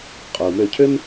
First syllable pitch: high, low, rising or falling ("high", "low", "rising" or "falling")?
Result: low